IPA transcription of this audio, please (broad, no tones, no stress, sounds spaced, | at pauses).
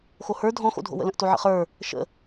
x o h ə˞ dʱ ɔ̃ x o̰ dʱ o̰ w ə̰ l ə̃ ʔ t o ʕ ə̰ χ ə˞ | ʃ ə̰